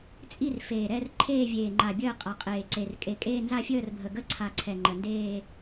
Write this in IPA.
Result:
t͡sʼ i˥˧ r f eː˨˩ ɾ ɛ˥˧ r ǃʰ eː˥˧ vʲ eː˨˩ ŋ͡ǃ a˨˩ bʲ əː˥˧ qʼ a˨˩ qʼ eː˨˩ ǀ e˨˩ r kʼ e˨˩ kʼ eː˥˧ n z a˥˧ fʲ əː˥˧ r bʱ ə˨˩ ɡ ə˥˧ ǀʰ a˨˩ ǀʰ ɛ˨˩ ŋ͡ǃ ə˨˩ n d eː˥˧

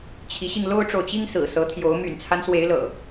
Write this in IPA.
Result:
t͡ɕʰ i˨˦ ɕ i˧ ŋ l o˦ ʊ̯ ʈ͡ʂ o˨ ʊ̯ t͡ɕ i˦ ŋ s ɹ̩˨˩ s ɤ˨˦ t̪ʰ j o˨˦ ʊ̯ m y̰˨˩ n t͡sʰ a˦ n s w e˨˦ ɪ̯ l ɤ̰˨˩

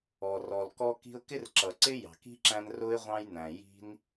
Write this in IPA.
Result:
ɔ˨ r ɔ˨ l k ɔ˧ k i̤˧ ʊ̯ k ɪ˦ r ǁ ʌ˨ ǀ ɪ˦ j ɑ̤˨ k i̤˦ ǁ æ̃˧ n r ʊ˦ ɪ̯ ʁʷ ɑ̃˦ j n æ̃˨ j i̤˧ n

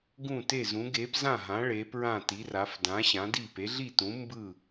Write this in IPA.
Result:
ɡ ũ˥˨ t e˥˨ z ũ˨˥ ɡ e˨˥ p z ã˥˨ ɦ ã˨˥ ɭ e˨˥ p ɹ ã˥˨ t i˨˥ r a˨˥ f d ã˨˥ ɕ ã˨˥ d i˥˨ p e˨˥ ɮ i˥˨ t ũ˨˥ m b ɯ˥˨

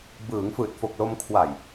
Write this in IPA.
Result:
b ɯː˩˦ ŋ f ɯː˨˩ t̚ f o˨˩ k̚ l o˧ m kʰ w a˨˩ j

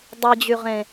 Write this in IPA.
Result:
dˤ i d͡ʑ y ʁ ẽ

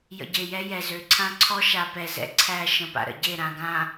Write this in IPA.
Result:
j ə̰˨ ɟ e˨ j ɛ˦ j ɛ˨ z ø˨˦ ǀʰ ã˦ ǀʰ ɔ˦ ʃ a˨ p ɛ˨ z ɛ̰˨ ǀʰ æ˦˨ ʃ ə̃˦˨ p a̰˨ ɾ ə̰˨ ɟ e˦˨ ɾ ã˨ ɡ ã˨

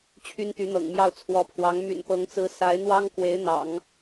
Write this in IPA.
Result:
t͡ɕʰ y˥ n t̪ y˧˥ n̪ ɤ̰˨˩ ŋ m j ɑ˥˩ ʊ̯ t͡sʰ w ɔ˧˥ pʰ w ɑ˧˥ ŋ m y̰˨˩ n p ɤ˧˥ ŋ t͡s ɹ̩˧˥ s a˧˥ ɪ̯ n̪ w ɑ˥ ŋ k w e˧˥ ɪ̯ n̪ ɑ̰˨˩˦ ŋ

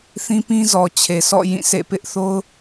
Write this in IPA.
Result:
θ ĩ˦ p ĩ˦ z ɔ˨ t͡ɕʰ e˨ sʰ ɔ̰˦˨ j ĩ˦˨ s ḛ˦˨ p ɪ˦ ʔ θ o˦ ʊ̯

